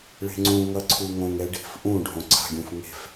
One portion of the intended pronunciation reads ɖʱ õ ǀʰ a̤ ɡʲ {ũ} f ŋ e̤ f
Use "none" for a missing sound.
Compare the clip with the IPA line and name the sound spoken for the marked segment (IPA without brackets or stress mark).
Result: ũ